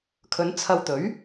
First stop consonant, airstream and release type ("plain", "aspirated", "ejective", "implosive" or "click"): aspirated